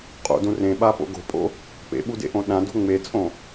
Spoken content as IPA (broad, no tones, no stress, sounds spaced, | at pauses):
qʼ o̰ d ũ r ẽ ɓ a p o̰ ɡ o̤ pʼ o̰ | p ḛ ɓ u d ḛ ʔ õ ɗ ã d o̤ ŋ͡m e t͡sʼ õ